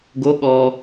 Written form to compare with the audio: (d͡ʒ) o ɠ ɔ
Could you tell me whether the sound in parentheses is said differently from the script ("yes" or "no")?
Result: yes